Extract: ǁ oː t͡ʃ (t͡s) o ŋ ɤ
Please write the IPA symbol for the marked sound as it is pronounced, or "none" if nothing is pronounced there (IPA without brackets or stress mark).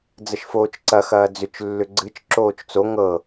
t͡s